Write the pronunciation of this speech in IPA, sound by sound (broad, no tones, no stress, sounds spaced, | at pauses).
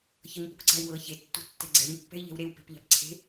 ç ɤ ɲ p u k ǀ a̤ i̯ w ɤ ç e tː ṳ tː ɛ̤ ɡ͡ǀ ɛ̤ ɲ pː ɛ̤ i̯ ʎ ɛ̤ w ɾ e w p e̤ p ʎ a̤ p ǀʰ e̤